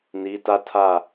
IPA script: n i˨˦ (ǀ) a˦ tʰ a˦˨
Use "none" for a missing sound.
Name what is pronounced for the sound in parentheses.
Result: t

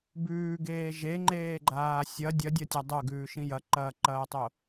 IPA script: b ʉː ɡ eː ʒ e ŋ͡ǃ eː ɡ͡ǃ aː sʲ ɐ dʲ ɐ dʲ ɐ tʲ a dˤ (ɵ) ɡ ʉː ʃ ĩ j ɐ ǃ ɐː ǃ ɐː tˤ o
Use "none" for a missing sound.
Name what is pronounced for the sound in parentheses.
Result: ɵ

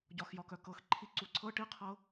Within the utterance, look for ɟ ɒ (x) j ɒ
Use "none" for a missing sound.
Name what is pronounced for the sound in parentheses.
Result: x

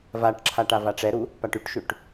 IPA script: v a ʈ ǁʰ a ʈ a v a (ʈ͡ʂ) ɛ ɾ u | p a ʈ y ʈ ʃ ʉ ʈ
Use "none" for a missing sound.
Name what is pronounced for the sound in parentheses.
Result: ʈ͡ʂ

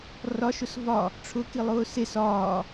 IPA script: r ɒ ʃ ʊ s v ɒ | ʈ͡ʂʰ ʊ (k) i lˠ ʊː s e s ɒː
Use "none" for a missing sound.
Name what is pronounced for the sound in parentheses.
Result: k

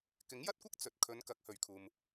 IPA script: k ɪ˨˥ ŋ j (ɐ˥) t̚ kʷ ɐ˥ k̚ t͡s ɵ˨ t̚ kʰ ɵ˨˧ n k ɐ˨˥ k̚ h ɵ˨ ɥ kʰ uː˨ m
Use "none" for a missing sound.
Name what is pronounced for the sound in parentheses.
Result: ɐ˥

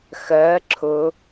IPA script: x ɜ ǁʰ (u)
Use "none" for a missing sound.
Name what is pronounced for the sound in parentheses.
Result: ʊ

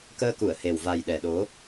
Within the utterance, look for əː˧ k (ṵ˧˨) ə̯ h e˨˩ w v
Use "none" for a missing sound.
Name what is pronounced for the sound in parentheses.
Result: u˧˩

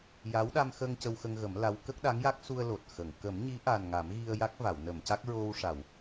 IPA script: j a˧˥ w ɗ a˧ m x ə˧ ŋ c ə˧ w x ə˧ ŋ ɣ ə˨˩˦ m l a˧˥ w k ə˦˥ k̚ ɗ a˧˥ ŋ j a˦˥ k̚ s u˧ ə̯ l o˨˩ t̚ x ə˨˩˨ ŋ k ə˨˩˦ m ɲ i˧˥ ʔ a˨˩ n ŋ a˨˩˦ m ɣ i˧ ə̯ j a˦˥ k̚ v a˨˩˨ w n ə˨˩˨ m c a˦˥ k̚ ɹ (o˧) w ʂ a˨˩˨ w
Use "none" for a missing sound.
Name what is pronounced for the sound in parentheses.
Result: o˧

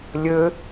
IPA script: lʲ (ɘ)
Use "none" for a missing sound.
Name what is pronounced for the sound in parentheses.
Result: ɘ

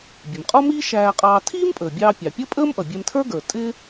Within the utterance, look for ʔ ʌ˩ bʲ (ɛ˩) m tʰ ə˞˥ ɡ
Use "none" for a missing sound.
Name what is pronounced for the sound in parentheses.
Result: ɛ˧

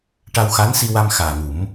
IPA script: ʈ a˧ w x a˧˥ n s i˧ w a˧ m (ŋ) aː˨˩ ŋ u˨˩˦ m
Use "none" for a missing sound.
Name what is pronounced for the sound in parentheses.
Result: x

